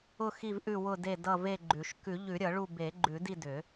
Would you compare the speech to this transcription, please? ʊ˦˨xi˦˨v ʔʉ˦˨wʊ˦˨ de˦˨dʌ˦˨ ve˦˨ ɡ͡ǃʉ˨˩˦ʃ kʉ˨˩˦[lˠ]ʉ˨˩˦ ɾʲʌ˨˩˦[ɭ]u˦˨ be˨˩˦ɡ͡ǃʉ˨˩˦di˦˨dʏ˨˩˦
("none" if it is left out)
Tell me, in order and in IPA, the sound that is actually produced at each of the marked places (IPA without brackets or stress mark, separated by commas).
ʎ, ɭ